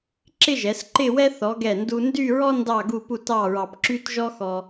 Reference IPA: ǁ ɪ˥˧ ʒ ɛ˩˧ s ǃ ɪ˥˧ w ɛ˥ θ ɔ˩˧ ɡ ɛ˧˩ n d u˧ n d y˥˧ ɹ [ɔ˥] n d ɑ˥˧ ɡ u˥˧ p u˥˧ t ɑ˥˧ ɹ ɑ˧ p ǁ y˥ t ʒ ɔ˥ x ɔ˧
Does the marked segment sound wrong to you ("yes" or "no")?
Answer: no